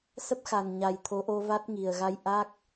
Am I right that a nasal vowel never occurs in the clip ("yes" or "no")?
yes